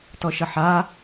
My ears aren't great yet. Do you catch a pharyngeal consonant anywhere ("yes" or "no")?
yes